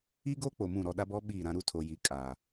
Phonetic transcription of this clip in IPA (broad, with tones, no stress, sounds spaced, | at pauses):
i˦ ɡ o˦ k͡p o˨ m ũ˦˨ ɾ ɔ˦˨ ɗ a˦ b ɔ˦ ɓ iː˦˨ ɾ ã˦ ɾ u˦ tʰ o˨ j i˨˦ kʼ aː˨